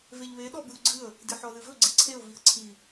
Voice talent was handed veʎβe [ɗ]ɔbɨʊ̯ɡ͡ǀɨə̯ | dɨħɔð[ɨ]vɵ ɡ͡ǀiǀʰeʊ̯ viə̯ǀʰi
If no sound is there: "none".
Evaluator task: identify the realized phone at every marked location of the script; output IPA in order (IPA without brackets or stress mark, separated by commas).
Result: ɗ, ɨ